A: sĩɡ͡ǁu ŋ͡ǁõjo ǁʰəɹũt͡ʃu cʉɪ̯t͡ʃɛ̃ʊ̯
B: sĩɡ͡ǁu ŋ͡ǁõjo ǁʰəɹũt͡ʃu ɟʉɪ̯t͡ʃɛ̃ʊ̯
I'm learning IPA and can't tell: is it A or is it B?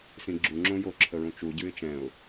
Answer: B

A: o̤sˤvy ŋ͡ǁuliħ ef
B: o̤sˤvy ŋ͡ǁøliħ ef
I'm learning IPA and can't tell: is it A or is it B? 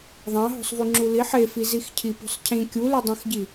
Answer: A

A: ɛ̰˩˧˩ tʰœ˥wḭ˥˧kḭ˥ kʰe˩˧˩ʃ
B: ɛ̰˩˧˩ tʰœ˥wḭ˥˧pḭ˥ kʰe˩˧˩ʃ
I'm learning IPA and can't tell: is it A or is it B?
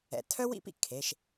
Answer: B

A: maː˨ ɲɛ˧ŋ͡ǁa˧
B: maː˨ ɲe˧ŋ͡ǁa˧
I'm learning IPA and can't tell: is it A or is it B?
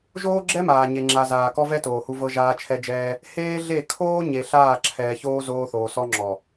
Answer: B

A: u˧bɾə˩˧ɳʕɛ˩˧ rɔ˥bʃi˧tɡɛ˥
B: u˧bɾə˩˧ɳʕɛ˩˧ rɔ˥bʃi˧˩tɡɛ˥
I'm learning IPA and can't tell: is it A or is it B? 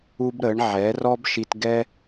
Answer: A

